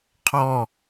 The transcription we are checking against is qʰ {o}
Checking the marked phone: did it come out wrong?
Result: yes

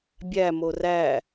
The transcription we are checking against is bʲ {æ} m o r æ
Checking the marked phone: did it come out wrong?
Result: no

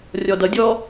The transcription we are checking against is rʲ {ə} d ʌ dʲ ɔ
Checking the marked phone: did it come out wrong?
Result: yes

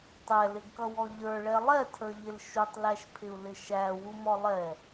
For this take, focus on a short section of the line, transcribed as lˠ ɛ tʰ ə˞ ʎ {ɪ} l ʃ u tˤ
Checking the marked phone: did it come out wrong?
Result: no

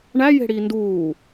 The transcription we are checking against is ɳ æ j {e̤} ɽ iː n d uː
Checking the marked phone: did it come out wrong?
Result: no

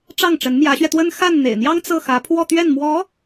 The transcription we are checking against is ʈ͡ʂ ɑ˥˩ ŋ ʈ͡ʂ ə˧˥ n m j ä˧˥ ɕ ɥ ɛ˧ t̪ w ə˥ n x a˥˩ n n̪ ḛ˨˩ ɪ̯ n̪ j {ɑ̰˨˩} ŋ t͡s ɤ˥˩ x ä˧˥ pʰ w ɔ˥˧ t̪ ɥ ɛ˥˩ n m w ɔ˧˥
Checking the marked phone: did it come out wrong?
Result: yes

